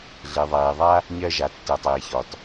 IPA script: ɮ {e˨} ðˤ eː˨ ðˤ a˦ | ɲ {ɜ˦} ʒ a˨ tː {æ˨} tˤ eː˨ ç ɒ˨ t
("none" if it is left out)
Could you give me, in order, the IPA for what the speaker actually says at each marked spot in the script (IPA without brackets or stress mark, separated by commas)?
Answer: e˨, ɜ˦, ɛ˨